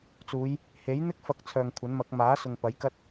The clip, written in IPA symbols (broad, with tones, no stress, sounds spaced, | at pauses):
t͡s uː˨˧ j | h e˨˥ j n̪ ɪ˥ k̚ f ɐ˨˥ k̚ t͡sʰ œː˨ ŋ kʷʰ ɐ˨˥ n m ɐ˨˥ k̚ m aː˨˥ s ʊ˨ ŋ p ɐ˨˥ j k ɐ˥ t̚